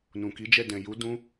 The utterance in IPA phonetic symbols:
nũ˨ki˨˦d͡ʒɛ˦˨ dɛ̃˨ju˨˦ dũ˦

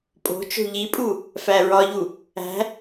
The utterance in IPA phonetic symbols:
pʼo̤t͡ʃo̤ ʎipʼu | fæɹɒʎu | æ̤

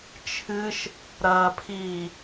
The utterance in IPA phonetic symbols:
t͡ʃʰɨʃ | ɾɐːpʰiː

